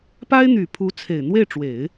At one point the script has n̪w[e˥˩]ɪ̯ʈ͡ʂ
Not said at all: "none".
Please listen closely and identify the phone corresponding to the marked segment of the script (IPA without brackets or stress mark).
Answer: e˥˩